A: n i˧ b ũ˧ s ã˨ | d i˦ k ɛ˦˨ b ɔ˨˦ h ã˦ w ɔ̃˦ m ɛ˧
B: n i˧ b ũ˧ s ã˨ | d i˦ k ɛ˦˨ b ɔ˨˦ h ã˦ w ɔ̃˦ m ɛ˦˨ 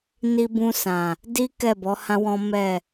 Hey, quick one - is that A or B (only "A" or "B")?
B